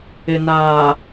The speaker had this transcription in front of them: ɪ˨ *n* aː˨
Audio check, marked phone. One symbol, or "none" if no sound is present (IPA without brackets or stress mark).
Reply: n